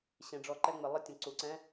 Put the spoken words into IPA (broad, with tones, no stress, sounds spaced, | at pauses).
ɕ ẽ˩˧ ɖ͡ʐ ɔ˨˩ ǃ ɛ˦˨ ŋ͡m ɪ˩˧ lˠ ɘ˧˥˧ tʲ ə̃˩˧ ǀ u˩˧ ǀ ɛ̃˧˥˧